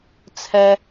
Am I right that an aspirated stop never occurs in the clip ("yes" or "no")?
no